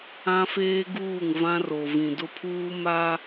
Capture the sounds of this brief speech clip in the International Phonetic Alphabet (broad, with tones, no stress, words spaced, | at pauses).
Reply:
ã˦feː˦ɡuː˦˨ŋ vã˦ro˨ vĩ˨dʊ˦pʰuː˦ ma˦